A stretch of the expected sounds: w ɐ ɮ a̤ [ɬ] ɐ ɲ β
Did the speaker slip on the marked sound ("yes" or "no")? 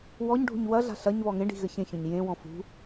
no